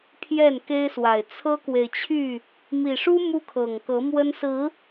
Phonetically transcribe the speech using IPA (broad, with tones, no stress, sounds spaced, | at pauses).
pʰ j ɛ˥˨ n k e˦ ɪ̯ s w a˨˩ ɪ̯ t͡sʰ ɤ˦ k w e˨ ɪ̯ t͡ɕʰ y˥˨ | m i˨˩ ʂ u˦ m u˦ kʰ ɤ˨˩ ŋ k ɤ˨˦ m w ə˦ n s ɹ̩˨˦